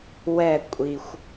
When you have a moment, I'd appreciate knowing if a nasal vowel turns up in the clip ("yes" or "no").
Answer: no